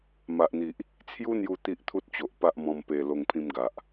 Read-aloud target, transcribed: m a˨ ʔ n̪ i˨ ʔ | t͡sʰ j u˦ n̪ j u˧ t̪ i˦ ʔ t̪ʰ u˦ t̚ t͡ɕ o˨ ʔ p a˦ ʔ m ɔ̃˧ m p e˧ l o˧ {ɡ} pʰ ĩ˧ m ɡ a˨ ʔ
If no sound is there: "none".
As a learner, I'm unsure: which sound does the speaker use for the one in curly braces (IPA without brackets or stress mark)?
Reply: ŋ